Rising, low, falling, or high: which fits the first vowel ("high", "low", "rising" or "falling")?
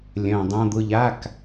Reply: low